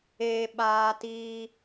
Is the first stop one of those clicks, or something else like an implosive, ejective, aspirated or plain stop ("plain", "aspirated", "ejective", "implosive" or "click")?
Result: implosive